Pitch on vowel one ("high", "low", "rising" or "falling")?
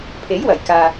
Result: rising